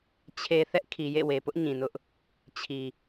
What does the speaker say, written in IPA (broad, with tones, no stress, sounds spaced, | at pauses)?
t͡ɕʰ e˨ θ ɛ˦ ʔ kʰ i˨ j ḛ˦˨ w e˨ p ʊ˦ ʔ ɲ ĩ˨ n ʊ˦ ʔ | t͡ɕʰ i˨